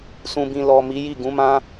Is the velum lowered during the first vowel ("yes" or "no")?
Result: yes